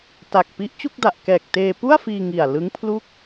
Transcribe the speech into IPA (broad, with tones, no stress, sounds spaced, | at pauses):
t a˨˩ k̚ p i˦˥ ʔ t͡ɕ u˥˩ k̚ d a˨˩ ʔ k ɛː˨˩ k̚ t eː˧ p u˥˩ a̯ f iː˧ ŋ i˨˩ a̯ l ɯ˦˥ ŋ pʰ l u˥˩ k̚